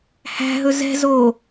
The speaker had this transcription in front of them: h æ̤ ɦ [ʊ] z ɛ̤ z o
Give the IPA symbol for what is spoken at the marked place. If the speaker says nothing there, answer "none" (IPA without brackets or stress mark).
ɵ